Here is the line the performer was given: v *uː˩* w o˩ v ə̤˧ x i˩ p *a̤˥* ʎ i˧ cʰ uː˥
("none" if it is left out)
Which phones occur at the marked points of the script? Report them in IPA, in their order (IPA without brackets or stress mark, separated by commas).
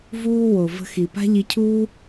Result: uː˥, a̤˥